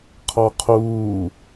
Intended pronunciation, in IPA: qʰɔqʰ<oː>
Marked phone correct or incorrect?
incorrect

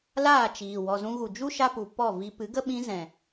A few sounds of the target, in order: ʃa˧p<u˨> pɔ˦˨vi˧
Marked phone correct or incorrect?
correct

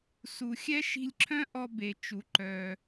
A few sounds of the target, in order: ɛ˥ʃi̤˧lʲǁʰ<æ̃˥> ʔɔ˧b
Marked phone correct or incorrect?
incorrect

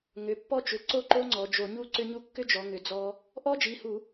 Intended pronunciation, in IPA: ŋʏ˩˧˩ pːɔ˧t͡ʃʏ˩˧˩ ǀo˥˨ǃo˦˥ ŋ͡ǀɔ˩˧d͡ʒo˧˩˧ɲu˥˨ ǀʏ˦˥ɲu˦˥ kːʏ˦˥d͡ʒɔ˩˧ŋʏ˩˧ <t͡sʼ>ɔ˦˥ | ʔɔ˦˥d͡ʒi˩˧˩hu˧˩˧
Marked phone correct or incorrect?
incorrect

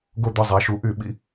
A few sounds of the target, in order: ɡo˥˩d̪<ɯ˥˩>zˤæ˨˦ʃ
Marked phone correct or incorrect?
correct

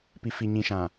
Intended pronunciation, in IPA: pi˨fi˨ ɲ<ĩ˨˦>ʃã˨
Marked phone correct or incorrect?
incorrect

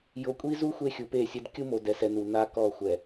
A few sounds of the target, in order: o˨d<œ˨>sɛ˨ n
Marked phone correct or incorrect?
incorrect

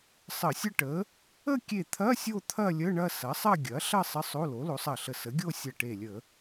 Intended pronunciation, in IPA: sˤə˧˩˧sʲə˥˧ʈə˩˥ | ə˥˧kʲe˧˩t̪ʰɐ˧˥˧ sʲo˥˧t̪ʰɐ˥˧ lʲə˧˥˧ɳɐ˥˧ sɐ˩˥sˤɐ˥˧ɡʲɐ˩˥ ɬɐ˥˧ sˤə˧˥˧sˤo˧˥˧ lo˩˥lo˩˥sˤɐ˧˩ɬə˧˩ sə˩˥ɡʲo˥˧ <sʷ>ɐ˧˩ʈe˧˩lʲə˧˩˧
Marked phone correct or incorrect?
incorrect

